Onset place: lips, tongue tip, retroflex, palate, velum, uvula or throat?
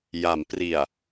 palate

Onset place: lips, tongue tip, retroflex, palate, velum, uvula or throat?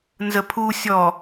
tongue tip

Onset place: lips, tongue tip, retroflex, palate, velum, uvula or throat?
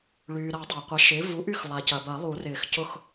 retroflex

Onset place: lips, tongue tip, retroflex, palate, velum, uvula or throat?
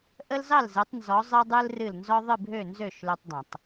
throat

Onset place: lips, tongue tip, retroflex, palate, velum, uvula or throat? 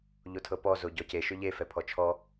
palate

